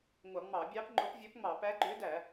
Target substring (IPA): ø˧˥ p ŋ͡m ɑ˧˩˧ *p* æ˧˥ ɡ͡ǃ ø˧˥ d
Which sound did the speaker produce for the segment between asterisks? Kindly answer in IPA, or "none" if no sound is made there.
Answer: p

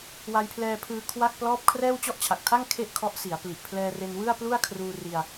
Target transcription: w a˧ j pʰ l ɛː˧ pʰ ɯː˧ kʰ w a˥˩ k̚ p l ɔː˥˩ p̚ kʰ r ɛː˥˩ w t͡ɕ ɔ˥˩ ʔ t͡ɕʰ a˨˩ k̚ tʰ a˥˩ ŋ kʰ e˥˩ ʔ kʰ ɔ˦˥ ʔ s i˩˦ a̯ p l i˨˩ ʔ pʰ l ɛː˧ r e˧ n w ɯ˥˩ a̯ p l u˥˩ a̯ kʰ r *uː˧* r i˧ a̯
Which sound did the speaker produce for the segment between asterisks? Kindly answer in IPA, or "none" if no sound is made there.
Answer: uː˧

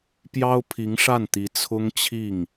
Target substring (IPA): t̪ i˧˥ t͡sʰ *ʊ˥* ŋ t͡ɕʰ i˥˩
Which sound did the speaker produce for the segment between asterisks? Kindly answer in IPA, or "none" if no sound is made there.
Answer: ʊ˥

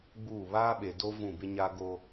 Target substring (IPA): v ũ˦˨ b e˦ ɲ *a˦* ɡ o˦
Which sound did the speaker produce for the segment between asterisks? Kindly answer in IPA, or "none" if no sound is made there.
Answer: a˦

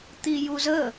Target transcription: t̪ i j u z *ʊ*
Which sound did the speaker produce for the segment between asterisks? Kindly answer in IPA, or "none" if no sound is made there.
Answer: ə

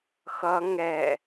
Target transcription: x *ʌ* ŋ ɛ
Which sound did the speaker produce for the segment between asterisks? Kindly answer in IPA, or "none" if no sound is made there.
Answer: ʌ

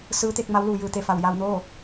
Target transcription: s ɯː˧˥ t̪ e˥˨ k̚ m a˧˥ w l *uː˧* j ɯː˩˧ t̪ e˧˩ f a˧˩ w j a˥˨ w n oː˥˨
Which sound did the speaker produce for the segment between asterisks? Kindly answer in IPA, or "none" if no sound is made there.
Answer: uː˩˧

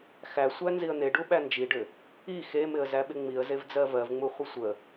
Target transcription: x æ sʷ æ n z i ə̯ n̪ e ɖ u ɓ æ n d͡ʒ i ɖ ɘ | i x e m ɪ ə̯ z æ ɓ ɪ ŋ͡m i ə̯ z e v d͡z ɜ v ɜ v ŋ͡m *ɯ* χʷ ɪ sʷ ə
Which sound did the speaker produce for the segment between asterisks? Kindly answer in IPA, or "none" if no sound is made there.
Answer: u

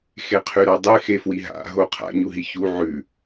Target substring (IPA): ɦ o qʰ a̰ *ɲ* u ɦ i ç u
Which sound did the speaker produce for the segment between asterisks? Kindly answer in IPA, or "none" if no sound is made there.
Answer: ɲ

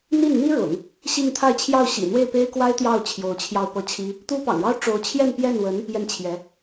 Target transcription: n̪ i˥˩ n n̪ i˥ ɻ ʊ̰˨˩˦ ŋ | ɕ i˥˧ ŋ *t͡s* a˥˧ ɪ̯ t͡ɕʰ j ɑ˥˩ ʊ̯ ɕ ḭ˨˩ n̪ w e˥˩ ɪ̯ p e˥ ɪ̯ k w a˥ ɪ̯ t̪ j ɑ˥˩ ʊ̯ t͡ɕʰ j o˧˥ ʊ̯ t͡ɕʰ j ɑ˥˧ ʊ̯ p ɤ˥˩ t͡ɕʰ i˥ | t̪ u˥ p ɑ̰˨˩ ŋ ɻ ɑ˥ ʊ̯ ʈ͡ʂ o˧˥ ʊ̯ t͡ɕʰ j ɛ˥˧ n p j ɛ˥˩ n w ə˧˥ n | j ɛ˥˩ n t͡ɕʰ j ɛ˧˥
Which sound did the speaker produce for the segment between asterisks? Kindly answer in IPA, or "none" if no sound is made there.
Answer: t̪ʰ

